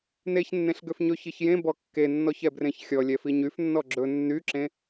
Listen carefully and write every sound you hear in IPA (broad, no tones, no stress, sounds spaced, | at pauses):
n e ç nː ẽ ɬ ɡ ø f ɲ ɵ ç i ç j ẽ b ɔ kː e nː ɔ ç ɛ b r ẽ ç xʲ ɔ lʲ ɛ f i ɲ y f nː ɔ ɡ͡ǁ ɵ nː y ǁ ẽ